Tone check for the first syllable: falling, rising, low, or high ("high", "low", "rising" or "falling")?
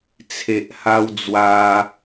low